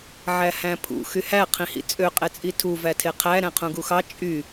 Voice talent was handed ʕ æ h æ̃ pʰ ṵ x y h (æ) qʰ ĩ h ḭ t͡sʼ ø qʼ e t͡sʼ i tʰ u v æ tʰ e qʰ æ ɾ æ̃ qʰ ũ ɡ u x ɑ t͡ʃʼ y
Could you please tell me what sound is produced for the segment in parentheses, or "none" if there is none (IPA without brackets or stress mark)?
æ